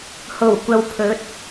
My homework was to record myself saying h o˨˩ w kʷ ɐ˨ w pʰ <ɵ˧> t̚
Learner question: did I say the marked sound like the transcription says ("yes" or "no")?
no